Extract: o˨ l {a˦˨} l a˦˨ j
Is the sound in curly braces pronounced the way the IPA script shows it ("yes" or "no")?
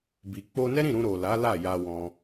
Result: no